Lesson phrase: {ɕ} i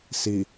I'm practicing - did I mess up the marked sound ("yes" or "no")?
yes